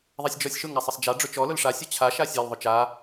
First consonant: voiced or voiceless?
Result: voiced